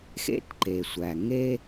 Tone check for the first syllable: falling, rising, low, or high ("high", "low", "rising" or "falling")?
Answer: rising